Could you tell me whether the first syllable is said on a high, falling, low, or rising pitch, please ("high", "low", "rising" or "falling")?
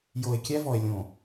low